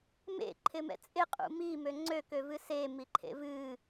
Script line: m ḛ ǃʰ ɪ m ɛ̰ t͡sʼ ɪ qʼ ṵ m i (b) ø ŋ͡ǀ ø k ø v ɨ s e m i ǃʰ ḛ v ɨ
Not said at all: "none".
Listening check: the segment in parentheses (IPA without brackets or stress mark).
m